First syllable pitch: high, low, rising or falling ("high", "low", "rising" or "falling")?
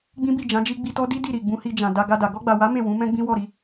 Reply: high